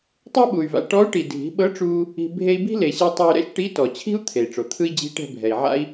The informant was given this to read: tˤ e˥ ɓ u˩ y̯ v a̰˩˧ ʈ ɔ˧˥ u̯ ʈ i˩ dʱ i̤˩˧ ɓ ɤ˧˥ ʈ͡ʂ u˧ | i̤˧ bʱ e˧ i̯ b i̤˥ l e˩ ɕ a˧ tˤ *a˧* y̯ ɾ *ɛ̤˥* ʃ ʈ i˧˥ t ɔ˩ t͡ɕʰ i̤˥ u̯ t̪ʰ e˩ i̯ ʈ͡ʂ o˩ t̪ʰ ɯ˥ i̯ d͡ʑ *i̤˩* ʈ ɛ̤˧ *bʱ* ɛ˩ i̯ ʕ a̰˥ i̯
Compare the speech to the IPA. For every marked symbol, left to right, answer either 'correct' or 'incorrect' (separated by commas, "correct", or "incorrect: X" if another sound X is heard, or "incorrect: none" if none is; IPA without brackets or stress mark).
correct, incorrect: ɛ̰˥, incorrect: i̤˧˥, correct